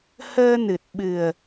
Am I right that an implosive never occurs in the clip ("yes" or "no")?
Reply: no